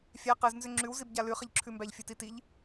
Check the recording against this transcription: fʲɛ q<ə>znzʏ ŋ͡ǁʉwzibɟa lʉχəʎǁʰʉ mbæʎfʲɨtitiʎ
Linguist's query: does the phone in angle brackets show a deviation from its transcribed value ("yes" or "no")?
yes